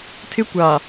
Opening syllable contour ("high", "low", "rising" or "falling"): high